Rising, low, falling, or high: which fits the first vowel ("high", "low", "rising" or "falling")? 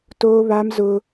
high